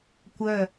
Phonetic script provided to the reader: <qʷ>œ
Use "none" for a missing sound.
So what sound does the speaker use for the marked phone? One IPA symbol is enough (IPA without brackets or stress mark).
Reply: kʷ